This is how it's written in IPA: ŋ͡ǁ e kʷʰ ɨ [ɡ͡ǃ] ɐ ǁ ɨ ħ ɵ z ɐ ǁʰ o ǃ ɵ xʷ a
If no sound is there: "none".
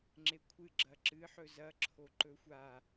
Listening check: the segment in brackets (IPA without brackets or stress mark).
ɡ͡ǁ